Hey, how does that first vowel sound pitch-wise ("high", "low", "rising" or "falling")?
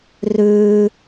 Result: high